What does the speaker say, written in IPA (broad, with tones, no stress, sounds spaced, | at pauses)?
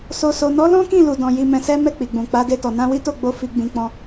s o˨ s o˨ n ɔ˨˦ l ɔ̃˦ k ĩ˦˨ l u˨ d ɔ̃˨ j i˧ m ɛ̃˧ s ɛ˦ m ɛ˦˨ k͡p i˨ ɡ͡b ũ˨ k͡p a˨˦ d e˧ t ɔ˨ n ã˧ w i˦ t o˦˨ ɡ͡b o˧ f i˧ ɡ͡b ĩ˧ k͡p ɔ̃˧